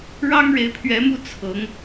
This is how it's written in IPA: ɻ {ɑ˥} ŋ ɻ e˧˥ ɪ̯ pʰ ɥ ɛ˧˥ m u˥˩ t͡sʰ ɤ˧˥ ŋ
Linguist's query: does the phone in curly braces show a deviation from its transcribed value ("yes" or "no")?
no